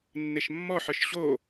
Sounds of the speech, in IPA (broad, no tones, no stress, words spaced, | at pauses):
nːeʃmːɔħə˞ʃ ɕo